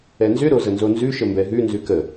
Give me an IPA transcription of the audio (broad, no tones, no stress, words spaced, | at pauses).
ɛnzʏɾo zənzonzʉʃə mbɛɦʉnzʉ kə